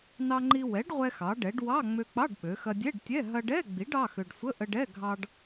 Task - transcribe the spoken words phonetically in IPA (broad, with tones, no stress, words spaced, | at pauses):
nɑ˧ŋ͡ǃi˧ wɛ˩˥ɖ ʁʷɛ˧xɑ˩˧ɖɛ˩˧ɖ wɑ˧˥˧ ŋ͡mø˧k͡pɑ˧˥˧ɖɓø˩˧xɐ˧ dʲɛ˧˥˧ɖtʲɛ˧˥˧ ɦɐ˧ɖɛ˧˥˧ ɡ͡bi˩˥ɖ ɑ˧˥˧xø˧ɖ sʷə˧˥˧ʔə˧ɖɛ˧˥˧ ɡʱɑ˧ɖ